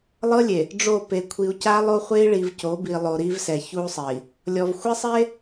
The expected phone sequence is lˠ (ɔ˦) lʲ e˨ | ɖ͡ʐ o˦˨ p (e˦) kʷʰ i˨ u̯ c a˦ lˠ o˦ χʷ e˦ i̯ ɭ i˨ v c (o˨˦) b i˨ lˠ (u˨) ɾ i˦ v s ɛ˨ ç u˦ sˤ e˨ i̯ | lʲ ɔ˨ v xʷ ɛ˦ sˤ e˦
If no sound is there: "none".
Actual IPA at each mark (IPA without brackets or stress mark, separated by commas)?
ɤ˦, e˨, o˨˦, o˨